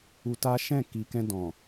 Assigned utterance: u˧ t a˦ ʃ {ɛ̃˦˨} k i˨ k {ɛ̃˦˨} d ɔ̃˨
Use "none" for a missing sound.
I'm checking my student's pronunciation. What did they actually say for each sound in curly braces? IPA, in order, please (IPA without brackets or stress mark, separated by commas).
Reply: ɛ̃˦˨, ɛ̃˧